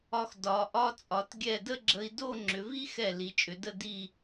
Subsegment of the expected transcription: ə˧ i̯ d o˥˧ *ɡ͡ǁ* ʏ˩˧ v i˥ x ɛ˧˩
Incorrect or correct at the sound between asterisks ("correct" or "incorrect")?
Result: incorrect